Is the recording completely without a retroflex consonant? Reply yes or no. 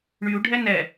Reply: no